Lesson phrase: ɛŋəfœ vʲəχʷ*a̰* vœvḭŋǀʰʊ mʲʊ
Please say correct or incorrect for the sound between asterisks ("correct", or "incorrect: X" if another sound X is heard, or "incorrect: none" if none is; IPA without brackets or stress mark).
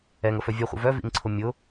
incorrect: ə̰